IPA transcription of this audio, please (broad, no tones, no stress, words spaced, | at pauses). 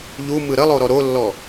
ʎumɯ ɾəlˠoɾɔ ɾolːɔ